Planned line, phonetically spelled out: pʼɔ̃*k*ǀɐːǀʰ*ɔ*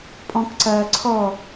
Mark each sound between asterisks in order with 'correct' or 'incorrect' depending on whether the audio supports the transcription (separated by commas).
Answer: correct, correct